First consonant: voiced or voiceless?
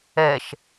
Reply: voiceless